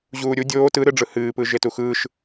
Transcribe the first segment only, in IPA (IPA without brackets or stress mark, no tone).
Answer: ʑ